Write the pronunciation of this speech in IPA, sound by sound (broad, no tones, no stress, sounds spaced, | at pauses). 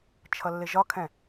t͡ʃʰ ʌ lː ɪ ʒ ɒ kʰ ɛ̃